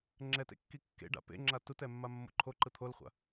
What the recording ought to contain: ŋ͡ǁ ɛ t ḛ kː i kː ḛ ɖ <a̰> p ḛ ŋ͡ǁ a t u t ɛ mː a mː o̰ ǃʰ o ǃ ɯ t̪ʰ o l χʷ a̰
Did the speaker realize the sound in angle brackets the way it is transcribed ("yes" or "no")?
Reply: yes